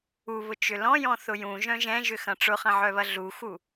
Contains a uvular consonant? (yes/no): yes